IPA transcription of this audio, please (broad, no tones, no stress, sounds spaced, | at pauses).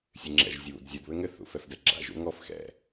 sʲ ɨ ŋ͡ǁ ɛ̰ ʒ zʲ u β ṵ d zʲ u d β ɘ ŋ ɘ θ ṵ f ɛ f d ɛ ɡ͡ǁ a̰ ʒ ṵ ŋ ɔ f x ɛ̰